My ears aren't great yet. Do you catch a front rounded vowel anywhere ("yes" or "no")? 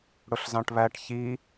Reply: no